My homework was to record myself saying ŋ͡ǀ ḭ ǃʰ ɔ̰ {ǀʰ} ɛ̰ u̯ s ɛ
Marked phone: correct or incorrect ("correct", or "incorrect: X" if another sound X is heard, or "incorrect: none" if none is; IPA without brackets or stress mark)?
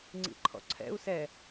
correct